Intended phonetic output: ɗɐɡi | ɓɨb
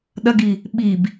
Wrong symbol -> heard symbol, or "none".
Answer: ɨ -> i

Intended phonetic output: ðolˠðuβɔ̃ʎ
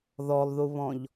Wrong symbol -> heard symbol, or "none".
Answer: o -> ɔ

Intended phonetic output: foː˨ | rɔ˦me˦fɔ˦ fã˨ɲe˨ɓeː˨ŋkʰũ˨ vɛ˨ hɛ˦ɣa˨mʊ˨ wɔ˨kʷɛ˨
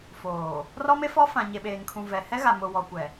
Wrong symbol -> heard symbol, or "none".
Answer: none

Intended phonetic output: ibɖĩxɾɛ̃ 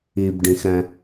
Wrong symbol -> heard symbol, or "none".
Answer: none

